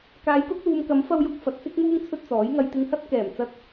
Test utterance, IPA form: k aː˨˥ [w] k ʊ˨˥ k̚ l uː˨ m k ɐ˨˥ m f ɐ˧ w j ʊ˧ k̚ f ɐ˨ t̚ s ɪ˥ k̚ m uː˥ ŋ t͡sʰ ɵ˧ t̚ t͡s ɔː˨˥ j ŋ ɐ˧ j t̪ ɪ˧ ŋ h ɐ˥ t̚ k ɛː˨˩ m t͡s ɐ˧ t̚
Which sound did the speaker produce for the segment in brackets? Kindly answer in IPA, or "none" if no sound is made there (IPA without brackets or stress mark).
j